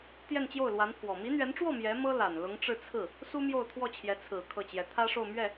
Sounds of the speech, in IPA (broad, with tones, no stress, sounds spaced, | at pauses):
t̪ j ɛ˥˧ n t͡ɕ j o˥˩ ʊ̯ l w a˧˥ n pʰ w ɔ˨˩ m i˧˥ n̪ ɥ ɛ˧˥ n ʈ͡ʂ w ɔ˥˩ m j ɛ˧˥ m ɤ˥ l a˨˩ n l ʊ˧˥ ŋ ʈ͡ʂ ɻ̩˥˧ t͡sʰ ɹ̩˥˩ | s u˥ m j o˥˧ ʊ̯ t̪ʰ w ɔ˥˩ t͡ɕʰ j ɛ˧˥ t͡sʰ ɹ̩˨˩ kʰ ɤ˥˩ t͡ɕ j ɛ˧˥ t̪ʰ ä˥ ʂ o˥˧ ʊ̯ m ɥ ɛ˥˩